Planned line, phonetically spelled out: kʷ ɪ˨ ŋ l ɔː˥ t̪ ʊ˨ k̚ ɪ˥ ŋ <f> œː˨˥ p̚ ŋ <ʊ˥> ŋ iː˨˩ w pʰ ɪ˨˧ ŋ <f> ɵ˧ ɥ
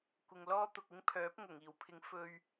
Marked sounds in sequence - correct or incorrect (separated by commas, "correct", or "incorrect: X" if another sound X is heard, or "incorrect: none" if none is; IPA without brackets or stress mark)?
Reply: incorrect: pʰ, incorrect: ʊ˨˩, correct